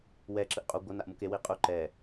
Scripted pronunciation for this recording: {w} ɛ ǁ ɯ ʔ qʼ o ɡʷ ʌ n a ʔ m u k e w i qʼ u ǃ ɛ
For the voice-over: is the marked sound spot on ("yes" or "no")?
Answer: yes